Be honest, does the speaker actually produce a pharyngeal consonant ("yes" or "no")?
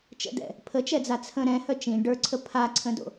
no